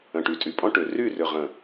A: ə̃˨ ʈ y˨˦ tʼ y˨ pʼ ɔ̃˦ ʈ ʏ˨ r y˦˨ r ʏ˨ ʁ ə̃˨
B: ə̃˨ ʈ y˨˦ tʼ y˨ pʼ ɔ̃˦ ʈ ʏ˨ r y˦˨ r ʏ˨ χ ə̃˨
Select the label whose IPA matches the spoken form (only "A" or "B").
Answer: A